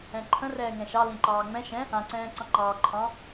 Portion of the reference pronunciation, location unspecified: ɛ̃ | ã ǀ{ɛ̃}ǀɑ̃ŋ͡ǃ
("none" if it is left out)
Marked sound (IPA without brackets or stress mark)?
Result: ɛ̃ː